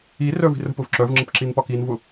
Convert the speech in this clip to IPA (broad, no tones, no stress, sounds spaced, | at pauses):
i r œ v i̤ r ə̤ p ʊ v ǁ œ v ŋ͡ǁ ə p ǁ i n p ɒ k i n v ʊ